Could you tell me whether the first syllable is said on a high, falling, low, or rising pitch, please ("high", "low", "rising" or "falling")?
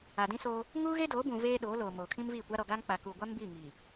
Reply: low